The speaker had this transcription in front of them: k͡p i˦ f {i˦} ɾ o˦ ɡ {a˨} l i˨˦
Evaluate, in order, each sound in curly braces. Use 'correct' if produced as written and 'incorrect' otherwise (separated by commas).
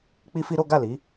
correct, incorrect